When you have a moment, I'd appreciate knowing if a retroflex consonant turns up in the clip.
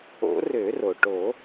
yes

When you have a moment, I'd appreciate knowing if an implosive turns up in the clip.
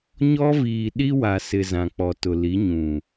yes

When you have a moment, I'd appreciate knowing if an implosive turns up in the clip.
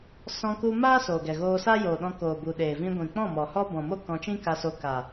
yes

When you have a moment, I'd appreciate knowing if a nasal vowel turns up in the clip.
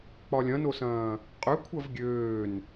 yes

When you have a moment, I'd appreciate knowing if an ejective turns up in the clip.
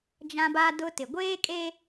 yes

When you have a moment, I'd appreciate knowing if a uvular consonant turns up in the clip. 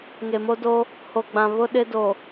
no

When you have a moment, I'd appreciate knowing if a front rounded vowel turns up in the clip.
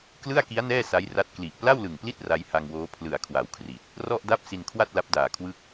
no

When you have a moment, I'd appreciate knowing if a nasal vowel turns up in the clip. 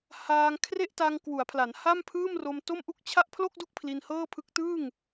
no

